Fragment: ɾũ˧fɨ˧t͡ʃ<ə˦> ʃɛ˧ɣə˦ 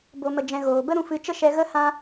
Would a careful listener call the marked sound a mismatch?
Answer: no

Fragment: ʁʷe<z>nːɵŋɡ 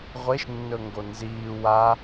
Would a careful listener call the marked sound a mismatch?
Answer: yes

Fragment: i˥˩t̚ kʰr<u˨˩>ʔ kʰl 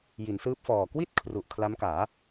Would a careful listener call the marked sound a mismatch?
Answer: no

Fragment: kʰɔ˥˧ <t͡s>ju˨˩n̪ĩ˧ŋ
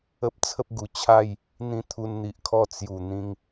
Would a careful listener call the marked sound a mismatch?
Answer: no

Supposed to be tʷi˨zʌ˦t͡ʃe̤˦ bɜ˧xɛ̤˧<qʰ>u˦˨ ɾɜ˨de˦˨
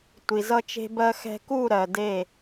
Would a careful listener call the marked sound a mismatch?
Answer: yes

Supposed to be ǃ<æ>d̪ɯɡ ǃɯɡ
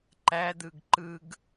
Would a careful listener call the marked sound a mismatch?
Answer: no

